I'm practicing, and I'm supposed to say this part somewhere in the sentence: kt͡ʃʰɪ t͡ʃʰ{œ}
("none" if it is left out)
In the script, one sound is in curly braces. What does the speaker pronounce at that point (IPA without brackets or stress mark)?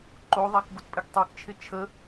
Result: ə